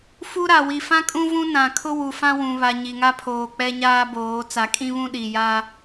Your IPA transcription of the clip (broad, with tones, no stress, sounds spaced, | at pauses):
f u˦ ɾ a˨ w i˨ f ã˦ kʼ ũ˦ v ũ˦ n ã˨ kʰ ʊ˦ w u˨ f ã˦ w ũ˨ β a˨ ɲ i˨ ŋ a˦ pʰ oː˨ k͡p ɛ˦ ɲ aː˦ b oː˨˦ t͡s a˨ kʼ ĩ˦ β ũ˦ ɗ i˨ j a˦